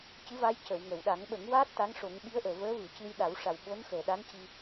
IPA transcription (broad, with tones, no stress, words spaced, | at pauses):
cɨ˧˥va˧˥j cə˨˩˨w ŋə˨˩˨w ɗa˨˩˦ŋɓə˨˩˦ŋwaː˦˥t̚ t̪a˧˥ŋʂo˨˩˦ŋ ɓi˧˥ə̯ʔəː˨˩˨vəː˧˥vɨ˨˩˨ cɨ˧jɗa˨˩˦wʂa˨˩w ɓo˧˥nxəː˨˩˨ ɗa˧˥nci˧